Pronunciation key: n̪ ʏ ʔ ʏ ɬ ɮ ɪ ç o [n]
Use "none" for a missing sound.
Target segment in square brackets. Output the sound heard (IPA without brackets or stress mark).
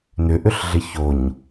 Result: ɲ